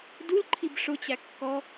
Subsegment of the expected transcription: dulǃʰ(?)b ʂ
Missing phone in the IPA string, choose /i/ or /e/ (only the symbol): i